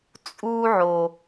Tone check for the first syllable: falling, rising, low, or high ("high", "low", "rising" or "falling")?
high